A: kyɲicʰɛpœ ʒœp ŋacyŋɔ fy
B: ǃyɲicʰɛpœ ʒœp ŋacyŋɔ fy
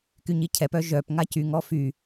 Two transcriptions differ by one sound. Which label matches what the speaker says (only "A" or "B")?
A